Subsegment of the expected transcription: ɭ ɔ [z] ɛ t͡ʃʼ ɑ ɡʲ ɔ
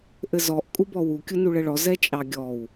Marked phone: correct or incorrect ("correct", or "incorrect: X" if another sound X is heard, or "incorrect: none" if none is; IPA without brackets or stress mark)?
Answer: correct